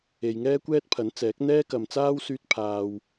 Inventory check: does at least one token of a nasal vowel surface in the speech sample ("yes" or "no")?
no